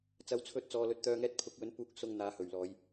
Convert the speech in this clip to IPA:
t͡s ɐ˨˥ w t͡sʰ ɵ˨˥ t̚ t͡s ɔː˨ l ɵ˨˥ t̚ t̪ œː˨ ŋ ɛː˧ t̚ pʰ ʊ˨˥ k̚ w ɵ˨˥ n p uː˨˥ k̚ s ʊ˨ ŋ n̪ aː˨˧ h ɵ˨˩ ɥ l ɔː˨˧ j

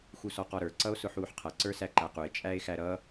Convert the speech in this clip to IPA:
x u s ɔ q ɔ ɾ ə˞ ǀ ʌ o̯ s ʊ ħ uː ħ qʰ ʌ ǀ ə˞ s æ ǃ æ q u e̯ t͡ʃʼ æ e̯ x æ ɾ ʌ

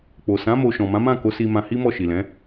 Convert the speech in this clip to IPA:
k͡p o˨ s ã˨˦ m o˧ ʃ ɔ̃˨ m ã˨˦ m ã˦˨ k o˨˦ s i˧ m ã˧ h i˦ m ɔ˦˨ ʃ i˨ l ɛ̃˨˦

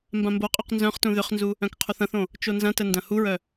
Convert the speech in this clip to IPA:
m b ã m b o qʼ ø q n z œ̃ χ t ũ ð ʏ χ n z u | œ̃ k qʰ u θ ɐ̃ θ õ | t͡ʃ o n z ɐ̃ t ə n d ɐ̃ h u ɹ œ

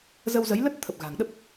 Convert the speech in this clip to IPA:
z ə˧ w z ə˨˦ j l ə˦˥ t̚ t̪ʰ ə˨˩ p̚ ɣ a̤˨˩ ŋ ɗ ə˦˥ p̚

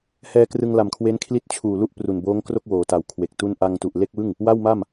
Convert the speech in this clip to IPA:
h ɛː˧ k r ɯ˧ ŋ l a˨˩ m kʰ w e˦˥ n kʰ l i˦˥ t̚ t͡ɕʰ uː˨˩ l u˥˩ ʔ p r u˨˩ n b oː˦˥ ŋ k r o˥˩ k̚ w oː˩˦ t a˨˩ w kʰ w e˨˩ k̚ t u˥˩ n ʔ a˧ ŋ t u˨˩ ʔ l e˥˩ k̚ w ɯ˥˩ ŋ | w a˥˩ w m a˥˩ m

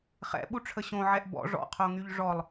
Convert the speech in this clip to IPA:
χ ɛ̰ ɓ u ʈ͡ʂʰ ə ɕ õ ʕ ɛ ʔ b ɔ̰ ʐ ɔ̰ qʰ o ŋ y ʎ ʐ ɔ lˠ

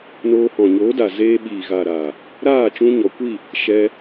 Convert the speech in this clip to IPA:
n oː˧ h ɔ̃˨ ɲ oː˨˦ d a˨ z eː˧ ɓ iː˨ ɣ a˨ ɾ aː˨ | ɾ aː˦˨ t͡ʃ ũ˧ ɲ ɔ˨ kʷ i˦˨ | ʃ ɛ˧

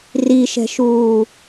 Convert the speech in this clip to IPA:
r i ʃ ɛ̤ ʃ uː

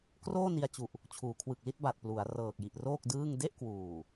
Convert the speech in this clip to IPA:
k r oː˥˩ n i˧ a̯ t͡ɕ u˨˩ ʔ | t͡ɕʰ uː˩˦ kʰ w ɯ˨˩ k̚ l i˥˩ t̚ b a˨˩ t̚ p l u˩˦ a̯ r ɤː˨˩ k̚ j i˨˩ ʔ r oː˥˩ k̚ d ɯː˥˩ ŋ d e˥˩ ʔ k w uː˨˩

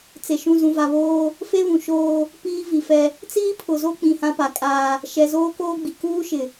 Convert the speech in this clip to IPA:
t͡s e˨ ʃ ũ˦˨ z ũ˨ v a˨ β oː˦ | f e˦ β ũ˨ ʃ oː˦ | p iː˦ v i˨ f ɛ˦ | t͡s iː˦ pʰ ʊ˨ z o˦ k͡p ĩ˨ h ã˦ p a˨ kʼ aː˦ | ʃ ɛ˨ z oː˦ k oː˦ ɡ͡b i˨ k uː˦ ʃ ɪ˨

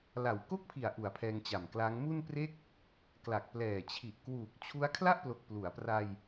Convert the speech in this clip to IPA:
l a˨˩ w k o˥˩ k̚ pʰ i˨˩ a̯ ʔ u˨˩ a̯ pʰ ɛː˧ ŋ t͡ɕ a˨˩ m k l a˦˥ ŋ m u˥˩ n p r e˥˩ k̚ | k l a˨˩ k̚ p l ɛː˨˩ t͡ɕʰ i˨˩ ʔ k w uː˨˩ k̚ t͡ɕʰ u˦˥ a̯ kʰ l a˥˩ ʔ p l o˨˩ k̚ p l u˩˦ a̯ p r a˧ j

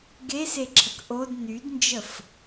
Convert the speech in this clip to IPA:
ɡ e s e ǁʰ ə k ʔ o d n y d n d͡ʒ ə f

